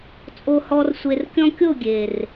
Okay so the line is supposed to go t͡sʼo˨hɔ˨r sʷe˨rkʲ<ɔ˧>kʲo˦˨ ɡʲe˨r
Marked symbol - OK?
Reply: no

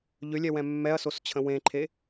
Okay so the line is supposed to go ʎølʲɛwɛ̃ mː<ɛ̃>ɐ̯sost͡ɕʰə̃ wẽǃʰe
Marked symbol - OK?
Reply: no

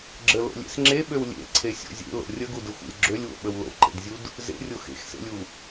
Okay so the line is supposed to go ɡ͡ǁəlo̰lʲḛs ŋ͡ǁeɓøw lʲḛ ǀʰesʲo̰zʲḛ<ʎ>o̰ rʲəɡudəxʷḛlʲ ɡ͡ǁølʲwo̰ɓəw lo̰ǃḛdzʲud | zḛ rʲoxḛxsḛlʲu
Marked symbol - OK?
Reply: no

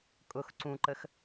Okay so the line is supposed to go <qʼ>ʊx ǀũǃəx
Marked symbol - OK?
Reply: no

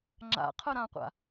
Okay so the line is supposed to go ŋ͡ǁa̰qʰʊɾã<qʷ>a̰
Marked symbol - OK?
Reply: yes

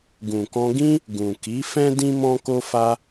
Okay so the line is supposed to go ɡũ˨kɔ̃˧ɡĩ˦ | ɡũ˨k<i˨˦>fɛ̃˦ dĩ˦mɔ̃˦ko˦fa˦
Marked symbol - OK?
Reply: yes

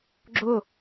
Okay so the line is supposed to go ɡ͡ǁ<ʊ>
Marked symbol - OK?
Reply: yes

